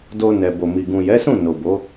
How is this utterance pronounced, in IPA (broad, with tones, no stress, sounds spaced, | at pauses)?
d o˧ n ɛ˨ b o˨ m i˨ ɡ ũ˨ j ɛ˨˦ s ũ˦˨ n o˨ b o˨˦